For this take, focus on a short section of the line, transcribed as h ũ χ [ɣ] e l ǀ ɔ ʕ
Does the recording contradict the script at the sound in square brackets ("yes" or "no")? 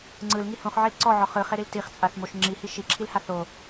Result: yes